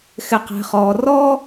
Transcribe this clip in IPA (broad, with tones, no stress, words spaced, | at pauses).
xɪ˧qɛ̤˧χɔː˧ rɔː˦